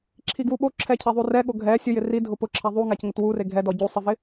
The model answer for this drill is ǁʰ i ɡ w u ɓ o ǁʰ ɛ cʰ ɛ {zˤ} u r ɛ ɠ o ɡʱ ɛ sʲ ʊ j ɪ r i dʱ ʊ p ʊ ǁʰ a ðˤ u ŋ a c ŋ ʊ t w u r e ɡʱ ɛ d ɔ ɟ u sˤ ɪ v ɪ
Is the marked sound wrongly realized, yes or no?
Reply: yes